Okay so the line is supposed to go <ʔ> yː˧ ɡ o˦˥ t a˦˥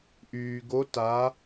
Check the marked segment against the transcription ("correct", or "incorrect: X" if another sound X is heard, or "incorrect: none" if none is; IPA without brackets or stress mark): correct